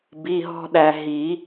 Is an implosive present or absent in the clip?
present